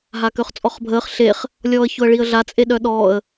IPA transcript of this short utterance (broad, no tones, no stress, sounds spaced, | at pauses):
ɦ a k ø χ t͡sʼ ɔ χ bʱ əː χ ɬ e χ | lʲ ɔː ə̯ ç ʊ ə̯ ɭ i ə̯ ɮ a t͡sʼ e ɗ œ ɗ ɔː ə̯